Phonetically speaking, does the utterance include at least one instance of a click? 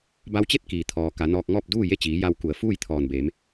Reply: no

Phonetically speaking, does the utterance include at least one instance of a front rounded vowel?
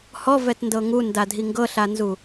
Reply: no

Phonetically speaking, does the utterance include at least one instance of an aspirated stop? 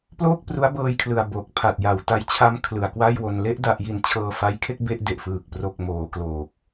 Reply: yes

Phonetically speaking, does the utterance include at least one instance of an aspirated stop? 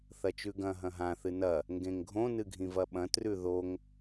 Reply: no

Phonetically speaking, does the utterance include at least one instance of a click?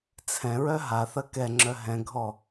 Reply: yes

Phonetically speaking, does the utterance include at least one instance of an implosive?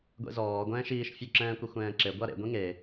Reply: no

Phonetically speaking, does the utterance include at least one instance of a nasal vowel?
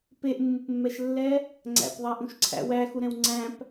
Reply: yes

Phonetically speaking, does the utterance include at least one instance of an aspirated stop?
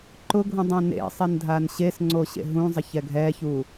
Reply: no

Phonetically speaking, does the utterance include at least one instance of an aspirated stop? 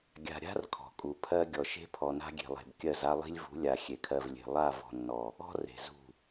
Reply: yes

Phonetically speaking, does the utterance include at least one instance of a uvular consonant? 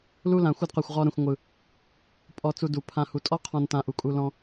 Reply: yes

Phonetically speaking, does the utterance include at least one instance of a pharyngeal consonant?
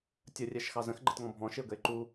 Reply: no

